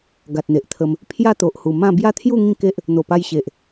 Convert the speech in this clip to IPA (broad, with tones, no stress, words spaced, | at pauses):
ɡa˨t̚n̪e˨ʔt̪ʰə˧m | pʰja˥˧t̪o˨ʔhu˨˩ mã˥˧ bja˦t̪ʰju˥˧ ŋĩ˥˧ke˦ʔ | n̪o˨˩pa˧jɕe˨ʔ